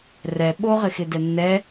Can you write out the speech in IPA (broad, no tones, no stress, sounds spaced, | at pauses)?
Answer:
r ɛ ɓ o ʁ ɪ x ɪ d ɛ nː ɛ